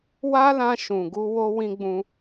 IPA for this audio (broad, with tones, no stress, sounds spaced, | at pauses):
w a˦ l ã˧ ʃ ũ˨ ɡ u˧ w o˦ w ĩ˦ ɡ͡b ũ˦